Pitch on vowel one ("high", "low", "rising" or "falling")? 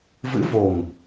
rising